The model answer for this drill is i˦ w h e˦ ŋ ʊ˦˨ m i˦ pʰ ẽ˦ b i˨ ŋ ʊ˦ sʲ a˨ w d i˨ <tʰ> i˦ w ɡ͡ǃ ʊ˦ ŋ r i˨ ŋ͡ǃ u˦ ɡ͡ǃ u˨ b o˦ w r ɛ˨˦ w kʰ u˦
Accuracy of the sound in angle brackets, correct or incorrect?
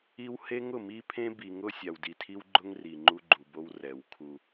correct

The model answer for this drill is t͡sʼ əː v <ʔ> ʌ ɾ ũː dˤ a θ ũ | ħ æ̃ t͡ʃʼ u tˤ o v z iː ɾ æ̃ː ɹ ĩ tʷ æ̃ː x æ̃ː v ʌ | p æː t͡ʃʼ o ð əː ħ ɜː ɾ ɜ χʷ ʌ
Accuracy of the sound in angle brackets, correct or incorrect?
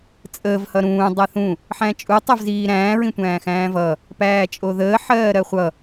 incorrect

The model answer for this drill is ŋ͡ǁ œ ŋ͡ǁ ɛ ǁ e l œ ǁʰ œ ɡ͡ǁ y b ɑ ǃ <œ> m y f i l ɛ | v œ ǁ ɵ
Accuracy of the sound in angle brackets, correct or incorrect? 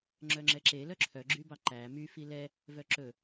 incorrect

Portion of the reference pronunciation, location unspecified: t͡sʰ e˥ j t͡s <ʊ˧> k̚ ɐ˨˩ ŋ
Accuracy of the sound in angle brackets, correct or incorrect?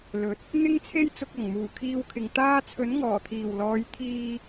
correct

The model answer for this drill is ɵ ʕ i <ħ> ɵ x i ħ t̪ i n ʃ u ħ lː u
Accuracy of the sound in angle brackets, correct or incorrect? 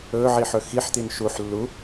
correct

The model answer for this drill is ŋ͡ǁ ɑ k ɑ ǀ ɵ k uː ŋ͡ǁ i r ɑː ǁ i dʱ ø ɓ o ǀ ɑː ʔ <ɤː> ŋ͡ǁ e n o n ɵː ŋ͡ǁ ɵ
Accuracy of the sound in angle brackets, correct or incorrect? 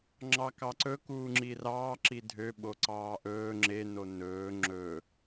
incorrect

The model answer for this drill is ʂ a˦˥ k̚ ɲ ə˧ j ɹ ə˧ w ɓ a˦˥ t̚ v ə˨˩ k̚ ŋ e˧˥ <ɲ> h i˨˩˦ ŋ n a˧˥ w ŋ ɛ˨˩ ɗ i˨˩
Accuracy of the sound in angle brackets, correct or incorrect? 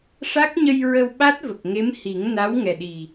incorrect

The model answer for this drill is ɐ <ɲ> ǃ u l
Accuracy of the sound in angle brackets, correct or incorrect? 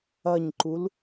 correct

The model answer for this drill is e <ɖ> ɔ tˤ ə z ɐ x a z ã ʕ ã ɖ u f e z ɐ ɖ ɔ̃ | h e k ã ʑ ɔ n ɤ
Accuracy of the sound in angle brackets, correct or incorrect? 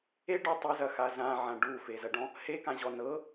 correct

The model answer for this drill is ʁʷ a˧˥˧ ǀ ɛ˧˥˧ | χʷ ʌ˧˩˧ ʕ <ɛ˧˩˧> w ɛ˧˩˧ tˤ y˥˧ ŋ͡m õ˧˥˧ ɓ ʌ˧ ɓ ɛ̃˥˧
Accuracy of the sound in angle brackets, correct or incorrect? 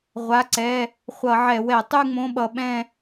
correct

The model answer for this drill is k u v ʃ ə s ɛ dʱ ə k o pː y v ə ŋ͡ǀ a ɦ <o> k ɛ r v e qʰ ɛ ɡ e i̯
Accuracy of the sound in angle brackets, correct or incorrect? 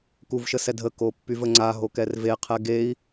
correct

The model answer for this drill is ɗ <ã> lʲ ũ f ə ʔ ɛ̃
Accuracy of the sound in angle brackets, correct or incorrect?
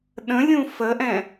incorrect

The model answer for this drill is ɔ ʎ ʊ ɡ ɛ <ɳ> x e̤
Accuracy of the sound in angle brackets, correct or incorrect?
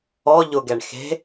correct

